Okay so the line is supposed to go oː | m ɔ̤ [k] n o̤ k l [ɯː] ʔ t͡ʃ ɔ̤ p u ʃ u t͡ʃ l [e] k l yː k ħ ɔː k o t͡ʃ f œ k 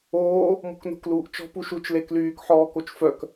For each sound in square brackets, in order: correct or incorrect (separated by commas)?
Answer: correct, incorrect, correct